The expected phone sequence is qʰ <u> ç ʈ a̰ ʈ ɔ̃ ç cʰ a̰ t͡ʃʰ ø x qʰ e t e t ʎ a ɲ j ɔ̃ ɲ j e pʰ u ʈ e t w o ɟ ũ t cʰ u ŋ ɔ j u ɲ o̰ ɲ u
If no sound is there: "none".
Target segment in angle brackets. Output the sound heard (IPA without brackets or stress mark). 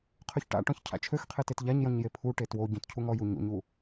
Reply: ø